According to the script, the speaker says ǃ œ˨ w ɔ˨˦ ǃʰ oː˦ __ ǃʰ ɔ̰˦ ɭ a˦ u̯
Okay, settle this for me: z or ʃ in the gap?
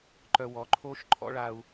ʃ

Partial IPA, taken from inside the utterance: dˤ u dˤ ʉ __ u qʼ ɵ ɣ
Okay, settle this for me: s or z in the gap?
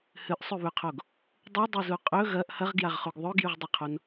z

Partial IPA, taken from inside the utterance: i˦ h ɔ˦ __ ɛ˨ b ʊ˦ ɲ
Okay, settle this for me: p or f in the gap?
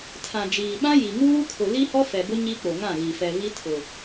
f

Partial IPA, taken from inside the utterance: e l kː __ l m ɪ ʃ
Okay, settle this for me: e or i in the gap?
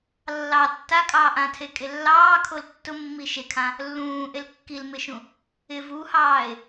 i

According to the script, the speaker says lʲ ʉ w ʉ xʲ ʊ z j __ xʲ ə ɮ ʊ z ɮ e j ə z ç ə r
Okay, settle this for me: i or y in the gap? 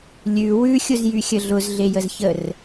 y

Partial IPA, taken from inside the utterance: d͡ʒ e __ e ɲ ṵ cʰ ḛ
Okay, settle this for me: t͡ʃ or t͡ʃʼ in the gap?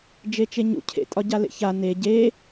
t͡ʃ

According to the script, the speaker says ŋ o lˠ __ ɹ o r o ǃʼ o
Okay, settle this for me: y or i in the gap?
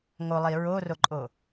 i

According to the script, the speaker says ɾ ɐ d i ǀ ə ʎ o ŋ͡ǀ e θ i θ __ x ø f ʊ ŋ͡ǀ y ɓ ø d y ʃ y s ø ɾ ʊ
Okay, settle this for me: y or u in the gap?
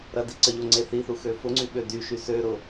u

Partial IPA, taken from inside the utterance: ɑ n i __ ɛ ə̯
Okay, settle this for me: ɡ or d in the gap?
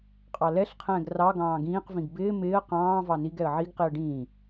ɡ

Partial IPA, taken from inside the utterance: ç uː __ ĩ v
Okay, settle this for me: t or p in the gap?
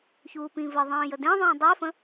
p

